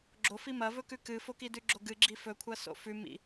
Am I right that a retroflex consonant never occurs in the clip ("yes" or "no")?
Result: yes